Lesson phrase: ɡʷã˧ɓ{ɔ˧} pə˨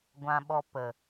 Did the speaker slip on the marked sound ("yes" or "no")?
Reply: no